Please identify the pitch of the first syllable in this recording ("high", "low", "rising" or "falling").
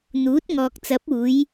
rising